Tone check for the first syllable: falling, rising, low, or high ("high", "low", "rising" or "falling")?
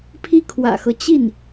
falling